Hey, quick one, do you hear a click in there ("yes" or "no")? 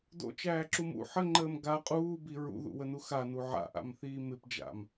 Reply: yes